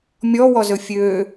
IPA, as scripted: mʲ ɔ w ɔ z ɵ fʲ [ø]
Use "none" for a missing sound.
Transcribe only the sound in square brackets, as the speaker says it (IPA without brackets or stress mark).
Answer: ø